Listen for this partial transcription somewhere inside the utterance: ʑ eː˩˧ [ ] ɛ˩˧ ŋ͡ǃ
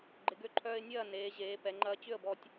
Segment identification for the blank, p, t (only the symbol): p